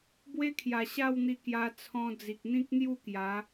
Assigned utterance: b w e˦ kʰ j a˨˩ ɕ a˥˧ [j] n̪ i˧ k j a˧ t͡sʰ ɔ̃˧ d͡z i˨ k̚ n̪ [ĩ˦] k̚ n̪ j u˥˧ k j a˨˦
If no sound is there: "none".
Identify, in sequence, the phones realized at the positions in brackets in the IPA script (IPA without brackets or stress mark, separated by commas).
w, ĩ˦